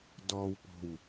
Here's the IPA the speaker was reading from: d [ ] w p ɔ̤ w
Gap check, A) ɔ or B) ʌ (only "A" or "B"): A